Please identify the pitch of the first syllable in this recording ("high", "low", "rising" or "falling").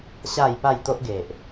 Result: falling